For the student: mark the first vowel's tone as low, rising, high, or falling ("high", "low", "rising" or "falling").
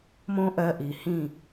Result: high